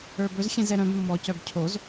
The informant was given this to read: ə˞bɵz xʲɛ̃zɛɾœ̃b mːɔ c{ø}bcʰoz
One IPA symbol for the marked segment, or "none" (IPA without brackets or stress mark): œ